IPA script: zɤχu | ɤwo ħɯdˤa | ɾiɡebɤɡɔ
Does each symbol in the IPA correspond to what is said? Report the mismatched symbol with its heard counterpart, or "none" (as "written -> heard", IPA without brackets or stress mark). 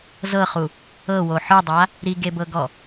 none